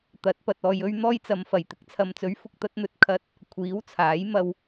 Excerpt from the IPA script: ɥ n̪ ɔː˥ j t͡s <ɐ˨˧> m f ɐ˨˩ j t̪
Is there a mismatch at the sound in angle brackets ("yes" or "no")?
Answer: no